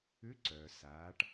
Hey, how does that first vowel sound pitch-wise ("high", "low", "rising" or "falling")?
rising